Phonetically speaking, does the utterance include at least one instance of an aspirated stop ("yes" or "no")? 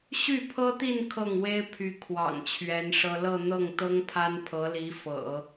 yes